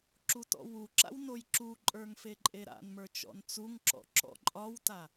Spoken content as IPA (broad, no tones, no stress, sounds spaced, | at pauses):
ǁ u t ɔ̰ w u ǁ a̰ w n o j ǁ u ǃʼ ə˞ ŋ f e ǃʼ e ɾ a̰ n m ə˞ t͡ʃ ɔ̰ n t͡s u ŋ ǁ ɔ̰ ǁ ɔ̰ ǃʼ ɒ w t a